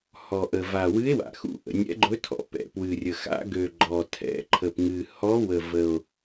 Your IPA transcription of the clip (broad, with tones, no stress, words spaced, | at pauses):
hɔ˨˩ʔə˨˩ va˨˩wɨ˧˥e̯wa̰˨˩xṵ˧˥ ʔə̰˨˩nʲɛ̰˧˥ɡ͡ǃɵ˧˥tʰɔ̰˨˩ pɛ̰˨˩pwɨ˨˩rʲə˨˩ xa̰˧˥ɡø˨˩ ɡ͡ǃɔ˨˩tʰɛ̰˧˥ǃʰə˨˩pŋɨ˨˩ hɔ˧˥wə˨˩ və˨˩o̯